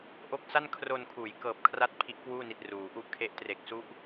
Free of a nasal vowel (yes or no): yes